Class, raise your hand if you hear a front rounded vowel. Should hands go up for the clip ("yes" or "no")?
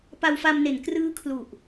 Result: no